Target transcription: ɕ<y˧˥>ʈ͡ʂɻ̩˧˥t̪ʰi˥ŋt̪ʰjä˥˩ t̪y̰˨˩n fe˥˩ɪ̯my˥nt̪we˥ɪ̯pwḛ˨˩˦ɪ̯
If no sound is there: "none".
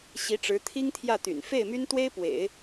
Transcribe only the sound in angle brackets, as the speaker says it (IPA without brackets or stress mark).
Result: i˧˥